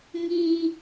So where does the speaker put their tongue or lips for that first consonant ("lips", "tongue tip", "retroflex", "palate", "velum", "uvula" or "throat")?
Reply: velum